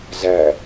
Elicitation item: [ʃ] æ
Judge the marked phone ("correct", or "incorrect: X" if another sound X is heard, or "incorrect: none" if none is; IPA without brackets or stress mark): incorrect: z